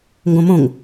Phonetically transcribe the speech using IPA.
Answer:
ŋɡõmõŋ

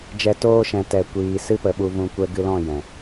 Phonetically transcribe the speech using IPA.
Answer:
d͡ʒɛ˧ toː˧ʃɛ̃˨ tɛ˧kʷiː˧ sɨ˦pə˨ɓu˧ vũ˧ kʷɛ˦ɡɨ˦ lɔ̃˦˨ jɛ̃˨

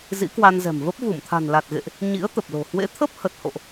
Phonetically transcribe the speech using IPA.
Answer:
zḭ˧˥kwa˧nzɛ̤˨˩m və˦˥p̚ vu˧˩mt̪ʰa̤˨˩nla˨˩t̚ɣḛ˧˨ʔ | ɲḭ˧˥ə̯t̪ə˨˩p̚lo̤˨˩ hwḛ˧˥t̪ʰə˦˥p̚hə˨˩t̚ho̰˧˨ʔ

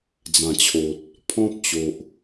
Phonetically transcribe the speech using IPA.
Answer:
d͡zã˨˩t͡ɕʰo˨t̚ | pʰɔ̃˦p̚t͡ɕo˨ʔ

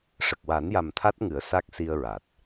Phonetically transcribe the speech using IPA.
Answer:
ʂə˨˩k̚wa˨˩˦nja˨˩m t̪ʰa˦˥t̚ŋɨ˨˩˦ə̯ sa˦˥k̚si˧ə̯ɹa˨˩t̚

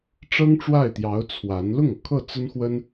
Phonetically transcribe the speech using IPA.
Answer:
ʈ͡ʂɤ˥ŋʈ͡ʂwa˥˩ɪ̯t̪jɑ˧˥ʊ̯ t͡sʰwa˧˥n lʊ˥˩ŋɤ˩kʰɤ˥˩ t͡sə˥nxwə˥n

